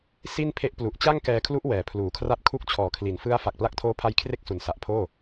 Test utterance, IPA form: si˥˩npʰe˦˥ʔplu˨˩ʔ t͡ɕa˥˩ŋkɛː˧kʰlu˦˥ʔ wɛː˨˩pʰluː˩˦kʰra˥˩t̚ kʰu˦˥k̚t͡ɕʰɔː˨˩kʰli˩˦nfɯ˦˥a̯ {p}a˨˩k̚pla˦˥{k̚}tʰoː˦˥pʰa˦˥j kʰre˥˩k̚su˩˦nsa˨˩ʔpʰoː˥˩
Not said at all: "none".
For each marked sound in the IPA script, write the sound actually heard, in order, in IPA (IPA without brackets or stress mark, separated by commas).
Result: f, k̚